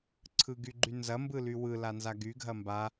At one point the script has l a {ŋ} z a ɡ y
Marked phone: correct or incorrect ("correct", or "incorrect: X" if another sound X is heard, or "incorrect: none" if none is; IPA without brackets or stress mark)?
incorrect: n